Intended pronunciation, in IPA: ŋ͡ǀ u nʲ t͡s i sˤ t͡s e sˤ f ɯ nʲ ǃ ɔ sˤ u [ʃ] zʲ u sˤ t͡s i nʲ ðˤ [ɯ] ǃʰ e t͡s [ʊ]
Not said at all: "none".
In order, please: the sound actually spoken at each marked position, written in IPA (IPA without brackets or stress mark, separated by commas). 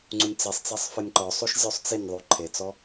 ʃ, u, ɔ